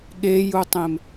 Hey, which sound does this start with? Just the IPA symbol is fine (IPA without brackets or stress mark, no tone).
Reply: ɠ